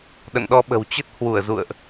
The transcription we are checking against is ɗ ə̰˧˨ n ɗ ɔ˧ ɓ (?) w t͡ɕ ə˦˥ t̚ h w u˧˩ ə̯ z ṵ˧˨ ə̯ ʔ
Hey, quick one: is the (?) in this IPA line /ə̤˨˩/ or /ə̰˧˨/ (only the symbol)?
ə̤˨˩